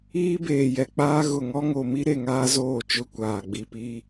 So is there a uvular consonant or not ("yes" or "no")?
no